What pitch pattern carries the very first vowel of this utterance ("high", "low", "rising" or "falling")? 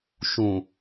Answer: low